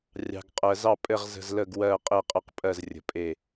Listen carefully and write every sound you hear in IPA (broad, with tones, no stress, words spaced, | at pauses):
rʲɑ̤˨ɡ qʼɜ˨zɑ˦˨pʼɘ˦˨ʁ zə̤˦˨zlə˦˨ɡ wɜ˦˨ qʼe˦˨qʼə˦˨qpʼɜ˦˨zrʲə̤˨ pʼe˦˨